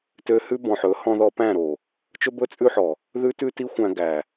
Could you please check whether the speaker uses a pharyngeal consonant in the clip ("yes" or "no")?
yes